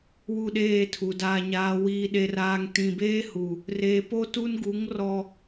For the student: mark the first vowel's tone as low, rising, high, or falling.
falling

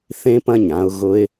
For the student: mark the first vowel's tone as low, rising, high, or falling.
high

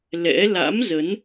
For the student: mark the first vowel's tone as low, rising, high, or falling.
rising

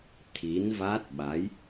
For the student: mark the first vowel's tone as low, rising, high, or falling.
rising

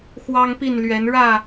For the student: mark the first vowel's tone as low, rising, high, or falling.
high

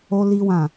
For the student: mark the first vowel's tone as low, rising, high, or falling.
high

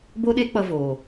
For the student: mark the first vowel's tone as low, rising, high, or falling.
high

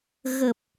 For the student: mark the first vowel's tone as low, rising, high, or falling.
low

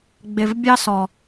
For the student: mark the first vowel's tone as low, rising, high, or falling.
low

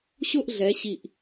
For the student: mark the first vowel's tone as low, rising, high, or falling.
falling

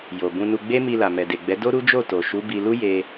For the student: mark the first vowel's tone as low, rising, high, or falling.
low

